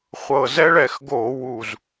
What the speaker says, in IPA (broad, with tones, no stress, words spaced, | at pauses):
χʷɤ˨˩zɛ˦ɭɛ˧˩˧xɡo˧˩˧ wu˨˩z